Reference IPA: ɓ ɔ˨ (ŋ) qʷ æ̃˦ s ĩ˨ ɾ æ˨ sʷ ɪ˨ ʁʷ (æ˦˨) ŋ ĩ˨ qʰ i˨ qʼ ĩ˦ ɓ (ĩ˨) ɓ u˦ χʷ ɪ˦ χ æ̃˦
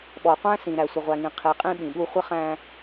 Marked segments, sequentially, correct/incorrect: incorrect: none, incorrect: æ˨, correct

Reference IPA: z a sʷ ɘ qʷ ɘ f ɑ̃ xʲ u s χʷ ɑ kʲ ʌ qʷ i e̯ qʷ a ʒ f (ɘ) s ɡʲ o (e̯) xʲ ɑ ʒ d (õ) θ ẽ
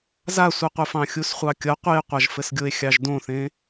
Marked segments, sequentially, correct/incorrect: correct, correct, correct

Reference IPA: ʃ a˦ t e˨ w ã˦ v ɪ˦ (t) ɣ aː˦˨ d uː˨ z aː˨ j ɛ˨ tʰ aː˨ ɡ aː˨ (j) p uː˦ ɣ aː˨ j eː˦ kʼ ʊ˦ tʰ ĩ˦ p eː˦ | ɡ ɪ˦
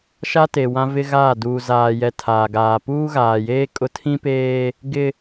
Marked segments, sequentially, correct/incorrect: incorrect: none, incorrect: none

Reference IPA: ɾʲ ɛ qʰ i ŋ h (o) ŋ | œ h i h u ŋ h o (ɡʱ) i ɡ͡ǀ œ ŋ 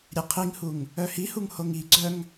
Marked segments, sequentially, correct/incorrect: incorrect: u, incorrect: ŋ

